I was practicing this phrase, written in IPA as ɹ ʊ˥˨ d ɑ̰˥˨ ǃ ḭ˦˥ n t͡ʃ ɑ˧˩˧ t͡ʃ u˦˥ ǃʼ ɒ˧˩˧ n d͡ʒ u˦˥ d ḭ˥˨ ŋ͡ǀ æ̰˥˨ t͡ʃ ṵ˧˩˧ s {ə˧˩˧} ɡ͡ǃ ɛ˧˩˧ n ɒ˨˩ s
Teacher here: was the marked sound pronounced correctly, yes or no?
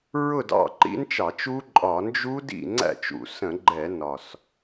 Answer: no